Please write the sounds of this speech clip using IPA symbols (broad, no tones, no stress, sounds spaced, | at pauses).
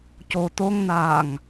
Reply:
c o t̪ o ŋ n aː ŋ